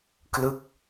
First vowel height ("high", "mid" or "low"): high